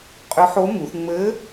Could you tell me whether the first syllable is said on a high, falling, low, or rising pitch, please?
rising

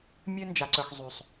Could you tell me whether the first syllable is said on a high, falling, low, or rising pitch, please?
high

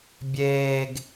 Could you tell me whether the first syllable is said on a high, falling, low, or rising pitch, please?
low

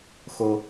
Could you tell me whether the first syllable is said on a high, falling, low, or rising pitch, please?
high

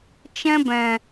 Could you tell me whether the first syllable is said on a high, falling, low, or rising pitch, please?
high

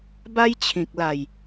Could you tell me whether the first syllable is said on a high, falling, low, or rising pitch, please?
high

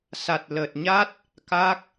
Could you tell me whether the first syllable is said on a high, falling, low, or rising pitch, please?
low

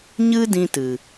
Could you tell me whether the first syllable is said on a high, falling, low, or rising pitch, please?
high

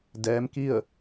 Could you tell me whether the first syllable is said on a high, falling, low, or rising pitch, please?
rising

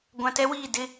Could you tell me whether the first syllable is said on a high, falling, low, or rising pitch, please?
low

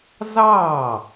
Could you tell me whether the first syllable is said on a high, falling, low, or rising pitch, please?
falling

